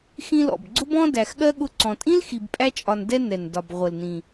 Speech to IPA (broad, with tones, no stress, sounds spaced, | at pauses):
x ĩ˦ l ɔ̰˩ b ɡ͡ǀ ʊ˥ b ɔ̃˥ d æ˨ x ɠ ɜ˥ ɠ ʊ˦ ǀ ɔ̃˨ tʼ ĩ˥ l x i˨ b pʼ æ˦ t͡ʃʼ ɒ˨ n d ɛ˦ n ɛ˩ n d ɒ˩ b ʁʷ ə˩ l n ĩ˩